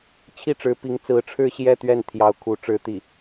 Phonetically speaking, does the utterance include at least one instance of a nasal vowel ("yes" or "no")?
no